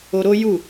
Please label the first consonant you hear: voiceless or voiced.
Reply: voiced